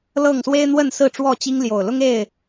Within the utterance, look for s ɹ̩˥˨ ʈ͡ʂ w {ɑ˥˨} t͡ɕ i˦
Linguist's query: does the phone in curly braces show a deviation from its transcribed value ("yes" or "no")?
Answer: yes